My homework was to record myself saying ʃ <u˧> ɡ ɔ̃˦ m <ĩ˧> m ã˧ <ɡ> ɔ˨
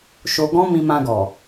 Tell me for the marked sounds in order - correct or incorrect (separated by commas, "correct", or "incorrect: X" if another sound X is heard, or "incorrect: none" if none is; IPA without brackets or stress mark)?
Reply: incorrect: o˧, correct, correct